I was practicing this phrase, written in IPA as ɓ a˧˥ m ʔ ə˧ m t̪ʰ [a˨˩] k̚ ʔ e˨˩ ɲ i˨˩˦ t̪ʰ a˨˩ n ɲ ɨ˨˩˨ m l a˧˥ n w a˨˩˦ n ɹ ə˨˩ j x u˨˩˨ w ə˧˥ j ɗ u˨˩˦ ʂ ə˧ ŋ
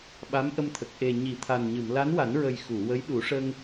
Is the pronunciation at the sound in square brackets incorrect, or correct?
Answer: incorrect